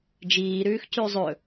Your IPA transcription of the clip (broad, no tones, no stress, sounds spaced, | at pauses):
d͡ʒ iː ɾ ʉː x c ʉ zˤ ɵ